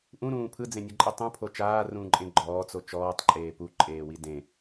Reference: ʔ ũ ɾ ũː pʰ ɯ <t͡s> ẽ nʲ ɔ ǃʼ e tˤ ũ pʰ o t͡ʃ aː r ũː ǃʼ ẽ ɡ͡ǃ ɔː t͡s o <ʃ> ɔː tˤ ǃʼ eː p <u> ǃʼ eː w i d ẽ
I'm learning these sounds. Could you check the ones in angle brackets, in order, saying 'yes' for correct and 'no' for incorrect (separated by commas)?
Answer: no, no, yes